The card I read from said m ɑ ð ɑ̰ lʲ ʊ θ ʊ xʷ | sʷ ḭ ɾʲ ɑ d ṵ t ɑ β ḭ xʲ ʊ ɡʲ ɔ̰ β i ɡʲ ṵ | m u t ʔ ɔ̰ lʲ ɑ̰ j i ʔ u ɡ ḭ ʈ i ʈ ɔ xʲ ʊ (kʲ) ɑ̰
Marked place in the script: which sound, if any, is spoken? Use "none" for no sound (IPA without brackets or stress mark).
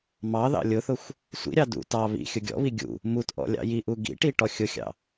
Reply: xʲ